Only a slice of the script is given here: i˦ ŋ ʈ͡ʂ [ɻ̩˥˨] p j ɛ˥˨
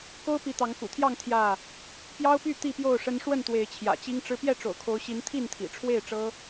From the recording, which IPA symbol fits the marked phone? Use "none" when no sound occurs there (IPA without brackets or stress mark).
ɻ̩˦